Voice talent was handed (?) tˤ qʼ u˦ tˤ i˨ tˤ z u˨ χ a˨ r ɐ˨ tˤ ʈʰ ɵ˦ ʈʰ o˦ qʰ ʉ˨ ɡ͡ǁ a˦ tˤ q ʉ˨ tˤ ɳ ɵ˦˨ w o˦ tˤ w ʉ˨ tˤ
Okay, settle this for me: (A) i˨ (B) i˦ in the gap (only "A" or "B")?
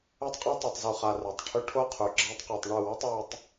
B